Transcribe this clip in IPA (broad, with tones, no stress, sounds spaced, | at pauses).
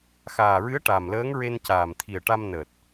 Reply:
x aː˨˩ ɹ ɨ˧˥ ə̯ ʈ a˨˩ m l əː˧˥ ŋ ɹ e˧ n c aː˨˩ m t̪ʰ i˨˩ ə̯ ʈ a˧ m n əː˨˩ t̚